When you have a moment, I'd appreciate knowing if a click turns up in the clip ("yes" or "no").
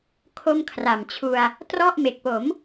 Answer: no